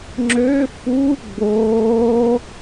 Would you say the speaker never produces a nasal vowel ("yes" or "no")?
yes